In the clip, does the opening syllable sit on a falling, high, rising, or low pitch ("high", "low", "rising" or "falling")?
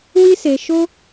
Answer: high